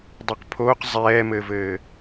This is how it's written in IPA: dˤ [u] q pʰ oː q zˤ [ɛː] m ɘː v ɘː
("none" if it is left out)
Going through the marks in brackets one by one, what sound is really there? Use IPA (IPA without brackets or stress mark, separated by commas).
u, ɛː